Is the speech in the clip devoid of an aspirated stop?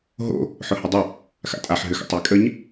yes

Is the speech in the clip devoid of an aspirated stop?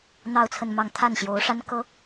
no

